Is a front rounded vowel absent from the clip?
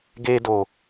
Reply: yes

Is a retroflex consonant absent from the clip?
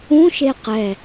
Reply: yes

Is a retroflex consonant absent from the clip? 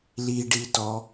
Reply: no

